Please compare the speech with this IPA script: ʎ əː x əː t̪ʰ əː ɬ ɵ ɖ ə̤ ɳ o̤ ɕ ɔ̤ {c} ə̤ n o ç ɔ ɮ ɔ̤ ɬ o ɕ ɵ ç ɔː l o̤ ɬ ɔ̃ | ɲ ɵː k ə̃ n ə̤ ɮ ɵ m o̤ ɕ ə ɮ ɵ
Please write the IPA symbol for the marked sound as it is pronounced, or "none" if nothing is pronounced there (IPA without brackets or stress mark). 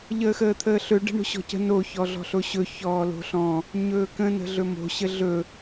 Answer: c